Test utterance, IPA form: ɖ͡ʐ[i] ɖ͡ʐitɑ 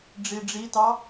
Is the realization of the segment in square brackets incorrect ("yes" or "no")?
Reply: no